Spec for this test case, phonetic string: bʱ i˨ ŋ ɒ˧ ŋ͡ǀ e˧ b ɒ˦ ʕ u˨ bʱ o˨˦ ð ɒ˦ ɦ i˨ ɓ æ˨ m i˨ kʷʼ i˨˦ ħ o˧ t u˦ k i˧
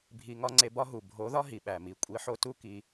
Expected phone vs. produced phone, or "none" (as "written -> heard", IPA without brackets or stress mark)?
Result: ʕ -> ɦ